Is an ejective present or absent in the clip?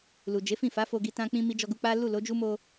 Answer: absent